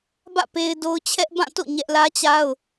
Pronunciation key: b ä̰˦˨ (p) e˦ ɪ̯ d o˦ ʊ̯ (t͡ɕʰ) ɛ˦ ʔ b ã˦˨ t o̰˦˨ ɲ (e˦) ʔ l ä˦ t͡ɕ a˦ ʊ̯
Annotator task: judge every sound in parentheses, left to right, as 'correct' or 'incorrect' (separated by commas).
correct, correct, incorrect